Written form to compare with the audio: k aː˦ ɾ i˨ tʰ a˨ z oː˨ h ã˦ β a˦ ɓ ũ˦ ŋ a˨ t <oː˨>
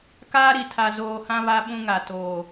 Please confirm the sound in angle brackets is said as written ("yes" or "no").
yes